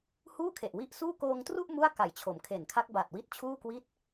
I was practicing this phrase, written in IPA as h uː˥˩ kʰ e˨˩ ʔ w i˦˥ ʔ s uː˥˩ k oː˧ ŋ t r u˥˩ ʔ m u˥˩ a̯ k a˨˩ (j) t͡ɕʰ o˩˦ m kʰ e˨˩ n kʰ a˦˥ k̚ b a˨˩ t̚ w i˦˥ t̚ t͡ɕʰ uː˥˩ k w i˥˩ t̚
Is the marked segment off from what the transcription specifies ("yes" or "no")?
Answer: no